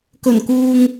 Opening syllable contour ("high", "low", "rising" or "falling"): low